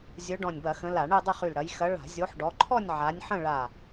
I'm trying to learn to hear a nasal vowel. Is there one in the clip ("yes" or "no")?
yes